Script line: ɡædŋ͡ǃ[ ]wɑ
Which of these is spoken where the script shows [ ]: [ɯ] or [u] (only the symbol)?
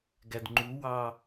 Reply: u